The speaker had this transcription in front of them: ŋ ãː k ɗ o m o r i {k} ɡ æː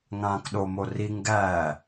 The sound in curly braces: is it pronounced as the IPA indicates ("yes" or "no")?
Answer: no